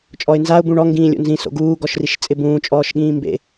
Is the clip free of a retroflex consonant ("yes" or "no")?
no